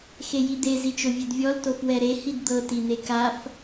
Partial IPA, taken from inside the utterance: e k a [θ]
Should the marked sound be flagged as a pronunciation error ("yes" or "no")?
yes